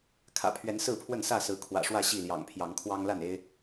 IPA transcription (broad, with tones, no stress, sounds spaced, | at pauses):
kʰ ä̰˨˩ pʰ ɥ ɛ˨˦ n s ɹ̩˥˨ pʰ w ə˥˨ n s ä˥˨ s ɹ̩˨˦ kʰ w ä̰˨˩ ʂ w ä˥˨ ɕ i˥˨ l j ɑ̰˨˩ ŋ pʰ j ɑ˨˦ ŋ kʰ w ɑ˦ ŋ l a˥˨ n e˦ ɪ̯